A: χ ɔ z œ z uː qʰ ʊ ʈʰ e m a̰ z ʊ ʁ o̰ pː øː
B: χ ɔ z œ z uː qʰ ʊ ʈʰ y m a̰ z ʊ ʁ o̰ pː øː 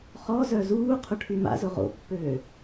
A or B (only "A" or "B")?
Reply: B